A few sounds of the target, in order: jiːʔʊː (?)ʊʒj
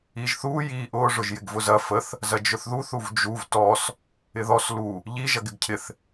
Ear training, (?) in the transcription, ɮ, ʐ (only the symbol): ʐ